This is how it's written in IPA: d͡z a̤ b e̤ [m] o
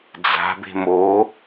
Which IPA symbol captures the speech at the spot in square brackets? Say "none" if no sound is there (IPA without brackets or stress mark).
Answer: m